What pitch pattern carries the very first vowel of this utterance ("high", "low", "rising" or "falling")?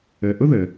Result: low